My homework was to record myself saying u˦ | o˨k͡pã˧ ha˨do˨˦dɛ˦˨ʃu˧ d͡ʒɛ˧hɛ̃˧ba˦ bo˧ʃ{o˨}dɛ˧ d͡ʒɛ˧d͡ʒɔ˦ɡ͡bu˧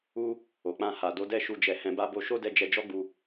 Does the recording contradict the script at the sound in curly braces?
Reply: yes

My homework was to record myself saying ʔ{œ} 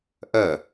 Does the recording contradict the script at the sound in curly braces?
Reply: no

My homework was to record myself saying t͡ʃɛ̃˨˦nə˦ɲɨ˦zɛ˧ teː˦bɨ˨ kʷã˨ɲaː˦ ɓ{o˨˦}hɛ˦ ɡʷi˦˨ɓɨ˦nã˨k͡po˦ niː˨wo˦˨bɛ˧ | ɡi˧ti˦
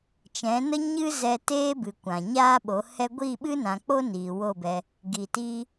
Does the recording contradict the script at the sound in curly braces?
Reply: no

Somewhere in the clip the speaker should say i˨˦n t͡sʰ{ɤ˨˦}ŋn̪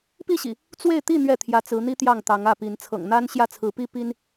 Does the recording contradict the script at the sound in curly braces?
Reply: yes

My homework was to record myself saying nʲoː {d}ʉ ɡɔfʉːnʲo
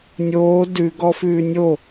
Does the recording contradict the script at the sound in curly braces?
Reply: no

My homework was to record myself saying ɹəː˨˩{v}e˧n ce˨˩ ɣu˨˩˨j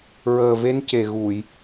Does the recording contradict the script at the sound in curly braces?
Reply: no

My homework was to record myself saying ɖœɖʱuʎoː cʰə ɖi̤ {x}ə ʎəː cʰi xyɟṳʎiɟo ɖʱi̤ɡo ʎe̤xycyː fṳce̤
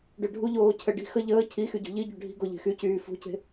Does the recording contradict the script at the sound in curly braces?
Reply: no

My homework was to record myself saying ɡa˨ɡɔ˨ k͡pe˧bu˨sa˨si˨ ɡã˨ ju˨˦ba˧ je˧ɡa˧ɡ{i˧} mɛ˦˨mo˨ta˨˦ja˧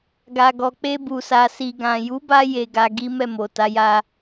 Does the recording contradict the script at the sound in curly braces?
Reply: yes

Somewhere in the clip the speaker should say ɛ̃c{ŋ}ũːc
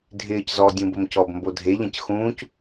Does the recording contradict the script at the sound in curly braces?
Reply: yes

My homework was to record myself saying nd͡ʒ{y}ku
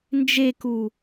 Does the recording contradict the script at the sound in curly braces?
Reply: yes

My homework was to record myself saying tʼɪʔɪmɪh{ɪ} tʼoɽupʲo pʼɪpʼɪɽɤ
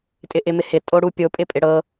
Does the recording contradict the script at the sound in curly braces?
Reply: no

